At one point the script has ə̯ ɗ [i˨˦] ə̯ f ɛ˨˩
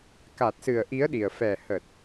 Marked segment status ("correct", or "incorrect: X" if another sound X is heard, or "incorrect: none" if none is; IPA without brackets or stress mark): incorrect: i˨˩